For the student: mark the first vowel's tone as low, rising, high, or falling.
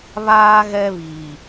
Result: high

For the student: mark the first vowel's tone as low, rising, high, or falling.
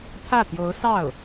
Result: falling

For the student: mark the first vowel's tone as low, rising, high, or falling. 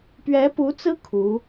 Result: rising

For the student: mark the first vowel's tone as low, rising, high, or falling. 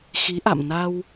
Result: rising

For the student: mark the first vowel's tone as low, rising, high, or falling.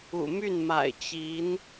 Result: low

